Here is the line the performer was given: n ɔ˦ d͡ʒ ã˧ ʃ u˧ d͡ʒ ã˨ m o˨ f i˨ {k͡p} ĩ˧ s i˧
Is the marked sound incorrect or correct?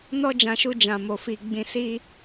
incorrect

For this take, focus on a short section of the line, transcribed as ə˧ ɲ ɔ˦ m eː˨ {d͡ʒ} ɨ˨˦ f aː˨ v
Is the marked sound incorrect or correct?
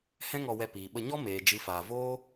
correct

